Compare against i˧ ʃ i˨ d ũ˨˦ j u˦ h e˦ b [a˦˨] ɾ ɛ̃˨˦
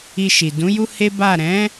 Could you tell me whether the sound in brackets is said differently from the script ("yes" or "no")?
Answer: no